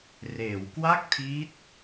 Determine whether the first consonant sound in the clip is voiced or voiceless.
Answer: voiced